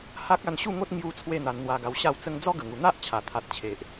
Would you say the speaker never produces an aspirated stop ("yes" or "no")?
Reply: no